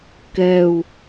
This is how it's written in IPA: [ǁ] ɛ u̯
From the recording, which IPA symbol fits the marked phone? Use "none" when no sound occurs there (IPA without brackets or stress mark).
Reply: k